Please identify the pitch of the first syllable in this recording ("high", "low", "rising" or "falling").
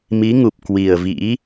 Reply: rising